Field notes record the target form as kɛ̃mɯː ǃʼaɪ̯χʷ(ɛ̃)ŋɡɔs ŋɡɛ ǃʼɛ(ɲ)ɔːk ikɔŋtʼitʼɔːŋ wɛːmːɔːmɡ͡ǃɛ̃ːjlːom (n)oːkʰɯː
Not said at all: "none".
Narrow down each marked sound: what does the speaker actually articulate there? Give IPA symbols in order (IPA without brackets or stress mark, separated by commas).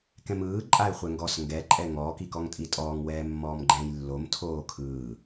ɛ, ŋ, tʰ